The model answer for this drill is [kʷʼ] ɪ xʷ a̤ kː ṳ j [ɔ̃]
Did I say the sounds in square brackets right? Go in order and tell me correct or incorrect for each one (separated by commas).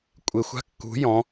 correct, correct